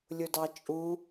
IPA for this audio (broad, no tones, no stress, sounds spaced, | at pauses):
lʲ ʊ d ɑ t͡ʃʼ u